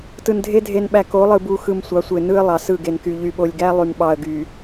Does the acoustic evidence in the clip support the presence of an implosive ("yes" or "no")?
yes